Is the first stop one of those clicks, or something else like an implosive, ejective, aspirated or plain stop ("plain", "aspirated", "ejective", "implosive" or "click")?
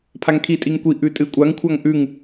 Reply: aspirated